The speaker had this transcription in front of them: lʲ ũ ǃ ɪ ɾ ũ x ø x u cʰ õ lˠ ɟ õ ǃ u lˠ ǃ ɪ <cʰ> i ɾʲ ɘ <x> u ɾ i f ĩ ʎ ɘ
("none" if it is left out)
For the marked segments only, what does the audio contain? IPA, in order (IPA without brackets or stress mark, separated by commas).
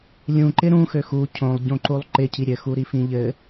cʰ, x